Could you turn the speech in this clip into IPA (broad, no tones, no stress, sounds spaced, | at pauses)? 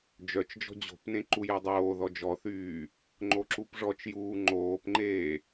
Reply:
d͡ʒ œ t͡ʃ d͡ʒ ɔ̤ d͡ʑ o̤ p n ẽ ǃ u j e dˤ oː ð ɔ d͡ʒ ɔ θ yː | ŋ͡ǃ o ǁ u p ʐ ɔ t͡ʃ j uː ŋ͡ǃ oː p ŋ͡ǃ eː